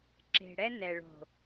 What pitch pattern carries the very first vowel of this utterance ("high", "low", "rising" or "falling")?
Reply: low